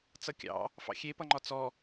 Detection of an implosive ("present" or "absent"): absent